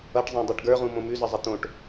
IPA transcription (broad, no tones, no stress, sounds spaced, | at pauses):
ʌ ʈ zˤ ẽ dˤ e ʈ ɡ ə˞ ʁ ũ m õ m ʉ z ʌ zˤ ʌ t̪ õ ʈ